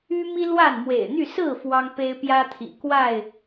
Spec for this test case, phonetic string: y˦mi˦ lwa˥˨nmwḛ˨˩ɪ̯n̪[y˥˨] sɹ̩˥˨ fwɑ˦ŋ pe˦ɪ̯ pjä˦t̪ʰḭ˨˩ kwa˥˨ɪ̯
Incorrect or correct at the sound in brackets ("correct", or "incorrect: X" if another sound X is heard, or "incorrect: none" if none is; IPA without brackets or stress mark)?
correct